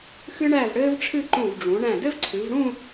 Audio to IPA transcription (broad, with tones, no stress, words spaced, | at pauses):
xɨ˥ɳæ˥˧vɽɘː˥vʈ͡ʂʰɨ˥˧ ǃũ˧˩vɖ͡ʐũ˩˧ ɳæ̃˧˩dɘ˥vǀʰɨ˩˧vɽũ˥˧